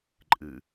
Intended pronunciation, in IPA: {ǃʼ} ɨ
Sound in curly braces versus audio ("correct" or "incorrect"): correct